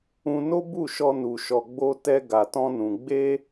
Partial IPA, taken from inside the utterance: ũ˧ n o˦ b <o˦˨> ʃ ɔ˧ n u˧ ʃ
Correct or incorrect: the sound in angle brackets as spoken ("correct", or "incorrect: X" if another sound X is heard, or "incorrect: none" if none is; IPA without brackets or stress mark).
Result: incorrect: u˦˨